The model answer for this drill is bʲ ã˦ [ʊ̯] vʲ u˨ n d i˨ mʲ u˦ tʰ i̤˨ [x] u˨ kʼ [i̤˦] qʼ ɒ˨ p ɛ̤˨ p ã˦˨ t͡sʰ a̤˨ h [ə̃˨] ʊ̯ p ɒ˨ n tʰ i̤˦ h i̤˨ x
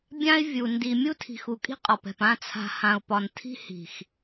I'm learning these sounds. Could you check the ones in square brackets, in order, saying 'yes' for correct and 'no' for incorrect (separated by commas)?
no, yes, yes, no